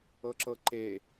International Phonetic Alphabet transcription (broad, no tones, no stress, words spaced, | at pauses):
ɤǁɤǃe